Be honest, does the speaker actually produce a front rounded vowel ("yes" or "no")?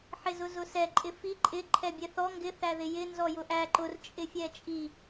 no